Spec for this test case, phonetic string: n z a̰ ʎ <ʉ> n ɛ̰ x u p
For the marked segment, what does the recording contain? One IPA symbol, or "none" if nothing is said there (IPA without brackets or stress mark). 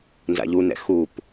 u